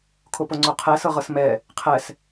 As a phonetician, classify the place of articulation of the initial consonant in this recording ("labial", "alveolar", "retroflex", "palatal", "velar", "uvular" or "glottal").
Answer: velar